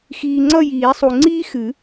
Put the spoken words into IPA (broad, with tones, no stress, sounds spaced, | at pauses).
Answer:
x iː˨ ŋ͡ǀ ʌ˦˨ j iː˨˩˦ sˤ u˨ ŋ͡ǀ iː˥ x ɨ˨˩˦